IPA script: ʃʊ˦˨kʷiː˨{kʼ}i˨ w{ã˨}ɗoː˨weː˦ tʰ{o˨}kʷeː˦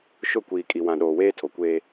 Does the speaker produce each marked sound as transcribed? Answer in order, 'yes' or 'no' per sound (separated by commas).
yes, yes, yes